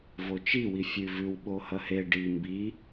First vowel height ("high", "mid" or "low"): mid